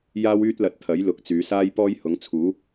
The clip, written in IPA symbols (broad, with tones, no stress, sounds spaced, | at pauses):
j aː˥ w yː˥ t̚ l ɐ˨˥ t̚ t̪ʰ ɐ˨˥ j l ʊ˨˥ k̚ t͡s yː˨˧ s aː˥ j p ɔː˥ j h ʊ˨˥ ŋ t͡sʰ uː˨˥